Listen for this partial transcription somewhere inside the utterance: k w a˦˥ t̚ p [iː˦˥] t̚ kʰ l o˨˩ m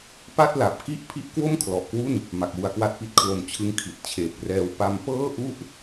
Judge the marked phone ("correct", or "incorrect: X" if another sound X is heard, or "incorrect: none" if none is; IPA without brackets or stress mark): incorrect: i˦˥